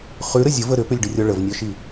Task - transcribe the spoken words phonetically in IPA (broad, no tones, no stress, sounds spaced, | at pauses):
χ ʉ ɾ ə zʲ ə v ə ɾ ʏ p ʏ lʲ ɖ ʏ rʲ ɔ ɭ ə v nʲ œ ʃ i